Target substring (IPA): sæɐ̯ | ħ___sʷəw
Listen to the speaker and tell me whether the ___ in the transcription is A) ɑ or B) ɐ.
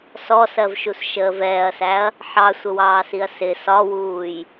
A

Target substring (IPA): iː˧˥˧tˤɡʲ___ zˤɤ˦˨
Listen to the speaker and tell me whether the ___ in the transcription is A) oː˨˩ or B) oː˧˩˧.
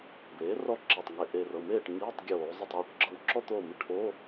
B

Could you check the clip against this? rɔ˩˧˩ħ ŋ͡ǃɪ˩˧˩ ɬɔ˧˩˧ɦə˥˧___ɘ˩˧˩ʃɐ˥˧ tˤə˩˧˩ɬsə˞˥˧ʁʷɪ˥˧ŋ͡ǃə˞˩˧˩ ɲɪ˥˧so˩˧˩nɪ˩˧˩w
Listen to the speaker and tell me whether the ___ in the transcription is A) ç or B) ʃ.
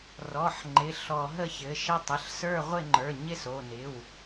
A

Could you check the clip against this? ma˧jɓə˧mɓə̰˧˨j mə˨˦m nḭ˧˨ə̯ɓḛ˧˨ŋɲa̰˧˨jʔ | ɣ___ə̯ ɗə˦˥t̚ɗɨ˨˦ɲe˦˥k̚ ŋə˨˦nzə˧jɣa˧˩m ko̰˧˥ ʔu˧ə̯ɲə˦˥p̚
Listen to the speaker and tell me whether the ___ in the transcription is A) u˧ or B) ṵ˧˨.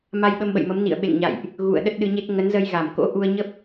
B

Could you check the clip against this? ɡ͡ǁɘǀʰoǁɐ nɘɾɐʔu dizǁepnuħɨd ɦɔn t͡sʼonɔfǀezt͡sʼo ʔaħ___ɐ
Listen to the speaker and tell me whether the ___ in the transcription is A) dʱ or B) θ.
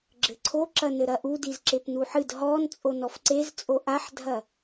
A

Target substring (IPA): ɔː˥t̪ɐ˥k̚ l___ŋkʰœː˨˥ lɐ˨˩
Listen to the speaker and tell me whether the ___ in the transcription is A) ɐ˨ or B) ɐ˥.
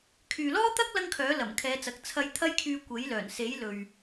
B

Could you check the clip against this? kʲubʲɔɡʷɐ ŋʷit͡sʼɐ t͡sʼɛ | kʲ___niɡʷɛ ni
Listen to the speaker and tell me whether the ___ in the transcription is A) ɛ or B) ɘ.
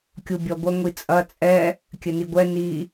B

